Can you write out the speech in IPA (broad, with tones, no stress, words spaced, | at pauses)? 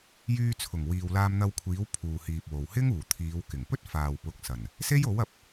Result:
jyː˧t͡sʰʊ˨˩ŋ wiː˨wlaː˧mn̪ɐ˧wkʷʰiː˨˥w pʰuː˨hiː˨p̚wo˨w hɪ˥ŋuː˨˩t̪ʰiː˨˧w kɪ˨˩ŋpɵ˥t̚faː˨w pʊ˨˥k̚sɐ˨˩n | se˥jo˨˥wɐ˨p̚